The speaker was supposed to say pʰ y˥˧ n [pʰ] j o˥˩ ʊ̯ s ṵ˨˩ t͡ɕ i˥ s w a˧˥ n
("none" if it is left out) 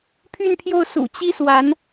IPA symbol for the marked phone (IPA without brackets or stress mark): pʰ